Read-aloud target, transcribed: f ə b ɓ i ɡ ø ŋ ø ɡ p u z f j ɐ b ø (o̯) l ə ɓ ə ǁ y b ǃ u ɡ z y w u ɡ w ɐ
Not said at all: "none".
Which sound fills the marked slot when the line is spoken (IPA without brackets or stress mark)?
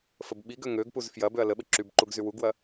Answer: ɐ̯